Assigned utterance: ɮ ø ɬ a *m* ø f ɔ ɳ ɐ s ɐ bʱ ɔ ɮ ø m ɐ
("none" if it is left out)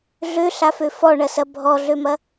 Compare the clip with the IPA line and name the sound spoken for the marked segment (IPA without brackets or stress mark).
f